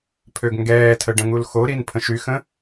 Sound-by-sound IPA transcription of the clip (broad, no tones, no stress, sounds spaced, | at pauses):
pʰ ø ɡ ŋ ɡ ɛː tʰ ə ɖ ə̃ ŋ u l x o ɾ i n pʰ ə̃ ʃ y x ə̃